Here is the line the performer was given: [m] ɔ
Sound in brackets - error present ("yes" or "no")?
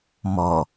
no